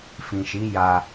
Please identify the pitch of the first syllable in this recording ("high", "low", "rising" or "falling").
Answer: low